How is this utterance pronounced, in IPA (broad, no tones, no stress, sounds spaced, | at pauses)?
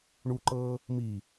ɳ u ǃ ɤː | m i